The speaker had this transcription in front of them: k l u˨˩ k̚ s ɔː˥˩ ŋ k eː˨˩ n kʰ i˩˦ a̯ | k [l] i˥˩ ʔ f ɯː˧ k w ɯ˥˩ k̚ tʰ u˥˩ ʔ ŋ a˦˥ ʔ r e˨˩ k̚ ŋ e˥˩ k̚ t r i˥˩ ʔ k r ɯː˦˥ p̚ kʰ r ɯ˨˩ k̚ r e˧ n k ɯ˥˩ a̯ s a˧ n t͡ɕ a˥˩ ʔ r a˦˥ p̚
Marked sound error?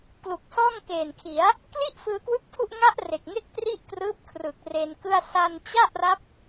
no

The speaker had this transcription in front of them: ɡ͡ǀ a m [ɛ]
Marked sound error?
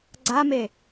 yes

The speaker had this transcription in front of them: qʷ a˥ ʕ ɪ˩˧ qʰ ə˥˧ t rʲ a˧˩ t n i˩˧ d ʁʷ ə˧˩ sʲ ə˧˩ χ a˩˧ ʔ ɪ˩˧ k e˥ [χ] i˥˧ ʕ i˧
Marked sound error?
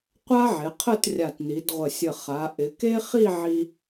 no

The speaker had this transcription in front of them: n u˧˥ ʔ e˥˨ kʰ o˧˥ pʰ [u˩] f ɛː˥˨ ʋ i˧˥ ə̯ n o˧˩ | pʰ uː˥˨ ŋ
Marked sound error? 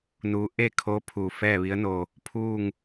no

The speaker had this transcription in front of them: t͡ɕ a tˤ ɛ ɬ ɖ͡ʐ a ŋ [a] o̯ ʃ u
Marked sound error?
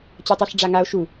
no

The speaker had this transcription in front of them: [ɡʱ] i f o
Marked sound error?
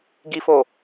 yes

